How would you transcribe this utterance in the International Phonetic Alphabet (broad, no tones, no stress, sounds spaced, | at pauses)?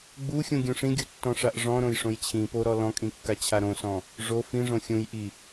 ɡ͡b u xʲ ũ ɡʲ ũ ʂ ĩ ɡʲ u tː ɔ̃ ʂ a ʔ ʐ ɔ̃ ɾ õ j ʂ õ j t͡ɕʰ ĩ p o ɾ ɔ l ɔ̃ kʼ ĩ kː a t͡ɕʰ a ɾ õ s ɔ̃ | ʐ o f ĩ ʐ õ xʲ ũ j ʔ i